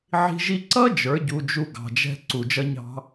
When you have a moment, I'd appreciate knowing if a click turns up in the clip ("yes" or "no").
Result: yes